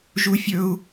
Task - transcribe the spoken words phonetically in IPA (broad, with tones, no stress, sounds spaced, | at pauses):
ʒ u˥ fʲ ɵ˥ u̯